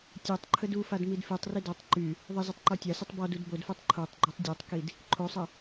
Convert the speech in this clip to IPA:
tʲetˤ ǃʰədufad midfytˤri dɔtˤ ǃy | ðˤəzitˤ ǃɔtʲasitˤ bɔd udbodfetˤ ǃʰotˤɡ͡ǃytˤ dʲotˤkid | ǃʰosˤə

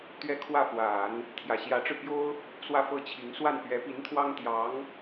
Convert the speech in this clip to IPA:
t̪ɥɛ˥kʰwä˥˩fwa˨˩˦n | t̪ʰjä˨˩ɕjä˧˥ʈ͡ʂɻ̩˧pjo˥ʊ̯ | swä˥˩fɤ˥t͡ɕʰi˧˥ŋ swa˥˩n pɥɛ˧˥pi˧˥nt̪ʰwɑ˥ŋ t̪jɑ˧˥ŋ

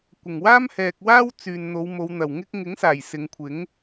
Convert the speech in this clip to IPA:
kʷɪ˨˩ŋwaː˥mhɛː˨k̚ waː˥w t͡syː˨nn̪o˨˧wmo˨˧w n̪ɐ˨˩wŋɪ˥k̚ ŋɪ˨˥ŋsaː˨˩j sɪ˨˧ŋkʷʰɪ˨˥ŋ

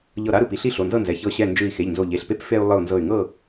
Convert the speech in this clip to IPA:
ʎɤ˧˩ ɾa˦ɾɯ˧˩pi˦ ɬi˦ɬo˩˧˩nzɤ˥˨nzɛ˩˧˩ çɤ˧˩ɕɛ˧˩ nd͡ʒɯ˧˩i̯ xe˩˧˩ʎnzo˧˩ʎe˩˧˩ɬpe˦p fe˦u̯ lˠɯ˧˩u̯nzɤ˧˩y̯ŋɤ˥˨

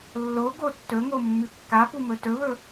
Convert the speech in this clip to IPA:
lːo ɡotːɵŋo mːʉkːapu mɵtɵβɵ

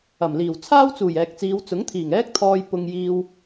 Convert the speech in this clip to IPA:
ɐ˨˩mliː˨˩w t͡sʰaː˥wt͡suː˨˩jɛː˨k̚t͡siː˨˧w t͡sʊ˨˥ŋt̪ʰiː˨˩ŋɛː˥k̚t̪ʰɔː˧j pʊ˧ŋ jiː˧w

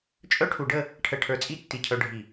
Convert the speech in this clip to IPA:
t͡ʃʼœ˥ʈʰu˧ɖə˥˧ | ʈʰə˧ ʈʰə˞˧t͡sʼi˥˧ tːi˧˩cʰœ˧ɖʱi˧˩

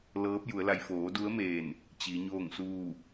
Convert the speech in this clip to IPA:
lɤː˧˥p̚ ju˩˧ə̯la˧j foː˩˧du˧˥ə̯ meː˧˩n | t͡ɕi˩˧ɲoː˥˨ŋsuː˥˨

